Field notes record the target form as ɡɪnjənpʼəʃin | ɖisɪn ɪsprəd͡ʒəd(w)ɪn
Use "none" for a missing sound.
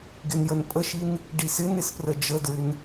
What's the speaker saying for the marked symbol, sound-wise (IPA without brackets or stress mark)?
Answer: ɹ